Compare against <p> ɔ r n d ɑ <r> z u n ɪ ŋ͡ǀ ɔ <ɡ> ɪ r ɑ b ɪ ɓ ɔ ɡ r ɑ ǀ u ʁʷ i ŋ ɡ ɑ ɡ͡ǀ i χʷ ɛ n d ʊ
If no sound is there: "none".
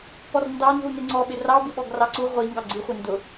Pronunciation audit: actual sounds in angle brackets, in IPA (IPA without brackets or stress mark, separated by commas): p, n, ɓ